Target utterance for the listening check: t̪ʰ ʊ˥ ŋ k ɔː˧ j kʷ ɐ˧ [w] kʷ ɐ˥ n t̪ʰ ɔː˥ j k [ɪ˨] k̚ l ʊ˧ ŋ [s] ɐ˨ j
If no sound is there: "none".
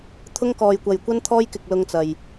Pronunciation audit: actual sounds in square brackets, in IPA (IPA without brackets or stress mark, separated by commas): j, ɪ˧, t͡s